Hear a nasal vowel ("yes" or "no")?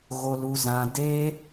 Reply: yes